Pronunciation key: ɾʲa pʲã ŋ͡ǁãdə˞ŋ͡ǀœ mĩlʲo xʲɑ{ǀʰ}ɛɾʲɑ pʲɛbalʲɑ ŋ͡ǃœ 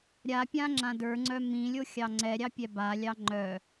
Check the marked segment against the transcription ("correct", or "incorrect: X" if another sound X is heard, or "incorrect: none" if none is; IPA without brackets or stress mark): incorrect: ŋ͡ǀ